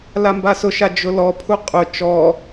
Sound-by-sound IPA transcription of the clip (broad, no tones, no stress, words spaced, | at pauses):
lambasʊʃa d͡ʒʊlɔpʰu qʼʊ t͡ʃɔ